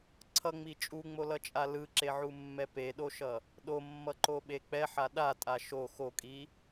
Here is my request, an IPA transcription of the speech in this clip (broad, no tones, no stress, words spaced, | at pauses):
ǀʰʌŋ͡mi t͡ʃʼuŋ͡molʌt͡ʃʼa lɯǁeʕumːɛ peɗoʃʌ | ɗomːʌǃoɓe k͡pɛħa ɗatʼa ʃo xokʼi